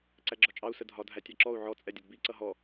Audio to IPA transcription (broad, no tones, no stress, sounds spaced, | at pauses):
ǀ æ ɡ͡ǁ ɒ t͡ʃʼ ɑ u̯ s ə dʱ ɒ dʱ æ tʲ ɑ ǁ ɔ u̯ ʕ ɔ t͡sʼ ɛ dʲ ʌ d b i ǀ ʌ ɦ ɔ